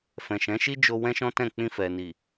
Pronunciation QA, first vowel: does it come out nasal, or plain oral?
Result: nasal